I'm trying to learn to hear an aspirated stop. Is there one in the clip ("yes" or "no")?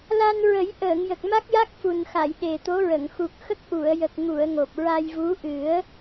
no